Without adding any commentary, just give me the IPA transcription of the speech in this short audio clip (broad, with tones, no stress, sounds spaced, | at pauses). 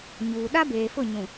ɲ uː˨ ɗ a˦ b eː˨ f ʊ˦˨ ɲ ũ˨